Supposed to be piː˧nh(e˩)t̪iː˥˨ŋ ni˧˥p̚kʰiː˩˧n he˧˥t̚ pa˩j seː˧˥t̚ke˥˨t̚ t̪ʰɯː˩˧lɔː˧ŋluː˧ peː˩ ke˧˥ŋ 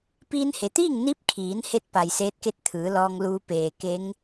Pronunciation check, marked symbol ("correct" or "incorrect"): correct